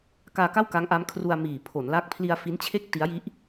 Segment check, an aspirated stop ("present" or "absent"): present